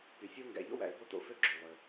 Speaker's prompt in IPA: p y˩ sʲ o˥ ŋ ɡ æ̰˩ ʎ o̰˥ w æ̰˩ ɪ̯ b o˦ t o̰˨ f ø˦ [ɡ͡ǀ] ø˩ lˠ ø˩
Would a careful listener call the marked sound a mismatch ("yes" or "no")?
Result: yes